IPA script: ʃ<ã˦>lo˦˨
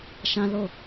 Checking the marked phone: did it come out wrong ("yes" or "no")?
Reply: no